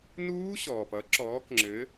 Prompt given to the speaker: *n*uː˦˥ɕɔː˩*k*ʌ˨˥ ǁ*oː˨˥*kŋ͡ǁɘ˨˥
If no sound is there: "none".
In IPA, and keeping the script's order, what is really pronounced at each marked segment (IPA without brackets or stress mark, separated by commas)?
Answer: n, p, ɔː˨˥